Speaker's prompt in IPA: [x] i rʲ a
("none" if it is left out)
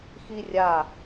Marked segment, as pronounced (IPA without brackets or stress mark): x